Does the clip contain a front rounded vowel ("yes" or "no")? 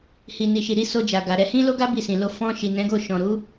no